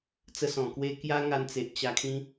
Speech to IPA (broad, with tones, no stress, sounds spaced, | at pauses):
t͡s ə˧ s ɔ̃˨˩ k w e˧ k j a˦ ŋ a˧ n t͡s e˨ ʔ t͡ɕ a˧ kʰ ĩ˦